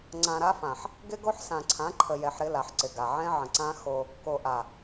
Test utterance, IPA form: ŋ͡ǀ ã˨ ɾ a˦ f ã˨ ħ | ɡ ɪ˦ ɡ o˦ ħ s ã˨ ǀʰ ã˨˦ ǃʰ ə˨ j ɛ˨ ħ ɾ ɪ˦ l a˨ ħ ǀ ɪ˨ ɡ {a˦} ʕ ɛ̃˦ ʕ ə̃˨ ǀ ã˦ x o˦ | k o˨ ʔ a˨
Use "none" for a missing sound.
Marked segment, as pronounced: a˨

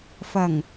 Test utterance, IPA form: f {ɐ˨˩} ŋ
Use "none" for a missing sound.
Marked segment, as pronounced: ɐ˨˩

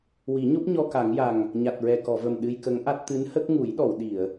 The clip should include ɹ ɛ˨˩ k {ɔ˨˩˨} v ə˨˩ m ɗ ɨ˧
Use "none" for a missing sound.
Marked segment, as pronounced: ɔ˨˩˨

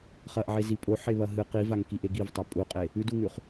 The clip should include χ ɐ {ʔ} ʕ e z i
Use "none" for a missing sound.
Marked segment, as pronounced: ʔ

